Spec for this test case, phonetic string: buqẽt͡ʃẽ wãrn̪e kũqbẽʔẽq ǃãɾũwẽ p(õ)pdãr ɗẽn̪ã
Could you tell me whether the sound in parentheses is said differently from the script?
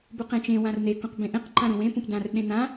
yes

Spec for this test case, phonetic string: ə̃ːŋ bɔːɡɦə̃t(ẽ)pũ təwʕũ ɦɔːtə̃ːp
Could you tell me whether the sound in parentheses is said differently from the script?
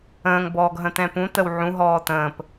yes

